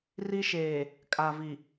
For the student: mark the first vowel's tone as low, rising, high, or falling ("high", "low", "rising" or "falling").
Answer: high